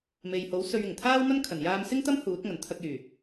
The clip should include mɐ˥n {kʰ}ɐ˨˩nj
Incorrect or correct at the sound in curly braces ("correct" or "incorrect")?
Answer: correct